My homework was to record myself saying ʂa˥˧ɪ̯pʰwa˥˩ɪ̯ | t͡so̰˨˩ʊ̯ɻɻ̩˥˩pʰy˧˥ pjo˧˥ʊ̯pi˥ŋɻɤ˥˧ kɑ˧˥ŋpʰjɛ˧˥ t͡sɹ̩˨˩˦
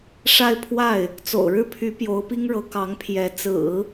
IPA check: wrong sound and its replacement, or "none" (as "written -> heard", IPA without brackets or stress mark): ɤ˥˧ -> ɤ˧˥